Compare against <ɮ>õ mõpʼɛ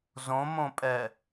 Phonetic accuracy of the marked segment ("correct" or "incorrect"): incorrect